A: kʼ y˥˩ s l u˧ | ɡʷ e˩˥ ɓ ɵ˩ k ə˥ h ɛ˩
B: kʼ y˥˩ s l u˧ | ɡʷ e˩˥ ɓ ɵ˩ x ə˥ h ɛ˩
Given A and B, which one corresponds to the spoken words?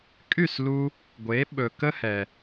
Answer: A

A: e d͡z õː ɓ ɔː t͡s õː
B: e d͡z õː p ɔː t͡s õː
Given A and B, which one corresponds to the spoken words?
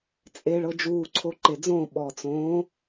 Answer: A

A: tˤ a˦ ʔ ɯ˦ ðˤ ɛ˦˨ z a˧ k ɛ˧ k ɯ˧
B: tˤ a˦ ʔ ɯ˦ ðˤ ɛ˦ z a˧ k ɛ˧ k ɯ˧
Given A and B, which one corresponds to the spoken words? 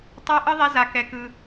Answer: B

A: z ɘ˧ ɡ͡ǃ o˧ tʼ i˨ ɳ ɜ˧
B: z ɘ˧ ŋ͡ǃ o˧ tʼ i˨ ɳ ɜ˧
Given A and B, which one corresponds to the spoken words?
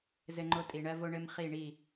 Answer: B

